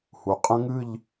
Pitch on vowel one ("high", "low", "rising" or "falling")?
low